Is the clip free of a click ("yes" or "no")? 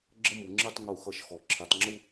no